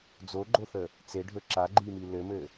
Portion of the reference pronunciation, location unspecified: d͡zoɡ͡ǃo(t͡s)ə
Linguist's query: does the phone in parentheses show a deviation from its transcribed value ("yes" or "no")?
yes